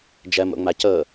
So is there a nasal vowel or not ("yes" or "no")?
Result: no